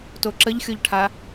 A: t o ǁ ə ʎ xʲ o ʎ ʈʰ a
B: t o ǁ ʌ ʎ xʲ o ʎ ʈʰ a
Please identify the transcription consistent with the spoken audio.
A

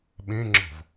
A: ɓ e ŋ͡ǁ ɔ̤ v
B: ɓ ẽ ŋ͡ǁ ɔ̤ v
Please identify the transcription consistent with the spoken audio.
B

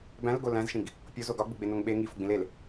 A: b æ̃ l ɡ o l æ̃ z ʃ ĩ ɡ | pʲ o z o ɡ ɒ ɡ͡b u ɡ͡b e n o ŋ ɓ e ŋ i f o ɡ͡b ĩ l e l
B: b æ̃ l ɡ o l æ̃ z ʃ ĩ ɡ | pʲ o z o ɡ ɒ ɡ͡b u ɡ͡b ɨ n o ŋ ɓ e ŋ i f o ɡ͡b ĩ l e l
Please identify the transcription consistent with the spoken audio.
A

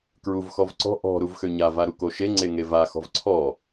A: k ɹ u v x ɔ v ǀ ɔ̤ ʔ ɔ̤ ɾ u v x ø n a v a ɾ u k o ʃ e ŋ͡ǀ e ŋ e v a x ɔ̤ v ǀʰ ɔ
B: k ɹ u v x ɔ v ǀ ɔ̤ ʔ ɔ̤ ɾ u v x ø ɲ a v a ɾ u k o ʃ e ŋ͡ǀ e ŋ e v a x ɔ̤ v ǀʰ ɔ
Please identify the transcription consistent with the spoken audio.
B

